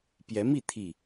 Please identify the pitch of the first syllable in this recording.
rising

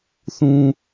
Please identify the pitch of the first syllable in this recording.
high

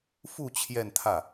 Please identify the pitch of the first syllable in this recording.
falling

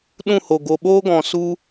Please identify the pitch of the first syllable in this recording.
falling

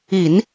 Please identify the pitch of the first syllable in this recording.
low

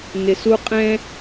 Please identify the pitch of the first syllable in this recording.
low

